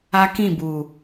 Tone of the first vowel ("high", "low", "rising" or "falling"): high